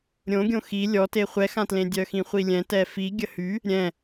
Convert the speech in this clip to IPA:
ɾʲ õ ɡʲ õ x i lʲ ɔ t e χʷ ɛ x ã t l ẽ dʲ œ x ĩ χʷ i lʲ ɛ̃ t ɛ f i ɡʲ ə h y | ɾʲ ɛ̃

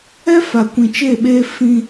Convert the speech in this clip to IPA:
ɛ˦ f a˨ kʷ ĩ˨ t͡ʃ e˦˨ ɓ eː˦ f ĩ˦

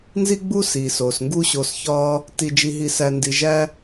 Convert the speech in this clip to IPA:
n z i˦ ɡ͡b u˦ s iː˨ s oː˨ s ŋ ɡ u˦ ɕ o˧ s ç ɒː˦ | t i˧ d͡ʒ i˧ ɦ i˧ s æ˧ n d i˧ ʒ æ˦

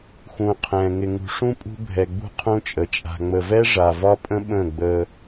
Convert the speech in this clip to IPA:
x ũː˨ qʰ ɛ̃ː˨ ŋ ɪ˨ ŋ ṳ˨ ʂ ũ˦ pʼ ṳ˦ bʱ ɛ˨ ɡ͡b ṳ˦ qʰ ũ˦ t͡ʃʼ ə˨ t͡ʃʼ a̤˨ ŋ͡m ə˨ v ɛ˦ ʐ a˨ v ɒ˦ pʼ ə̃˦ ɓ ə̃ː˦˨ ɡ͡b əː˦

